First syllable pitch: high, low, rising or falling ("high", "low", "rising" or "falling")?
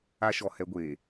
high